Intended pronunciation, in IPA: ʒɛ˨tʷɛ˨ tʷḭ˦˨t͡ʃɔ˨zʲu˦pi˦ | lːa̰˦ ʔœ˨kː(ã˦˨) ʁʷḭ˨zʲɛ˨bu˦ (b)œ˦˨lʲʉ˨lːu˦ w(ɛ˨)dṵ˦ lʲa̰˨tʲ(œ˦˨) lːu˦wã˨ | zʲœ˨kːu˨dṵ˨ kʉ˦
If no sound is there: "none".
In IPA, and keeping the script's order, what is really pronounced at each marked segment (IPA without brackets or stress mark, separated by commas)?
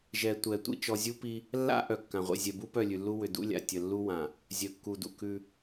ã˨, p, ʏ˨, ə˦˨